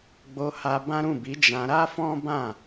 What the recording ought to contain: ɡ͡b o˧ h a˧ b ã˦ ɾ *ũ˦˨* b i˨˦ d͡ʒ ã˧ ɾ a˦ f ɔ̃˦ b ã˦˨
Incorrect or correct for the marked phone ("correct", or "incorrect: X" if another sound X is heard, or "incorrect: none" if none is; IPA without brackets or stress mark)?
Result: correct